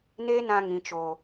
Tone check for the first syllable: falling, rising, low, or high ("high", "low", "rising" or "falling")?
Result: high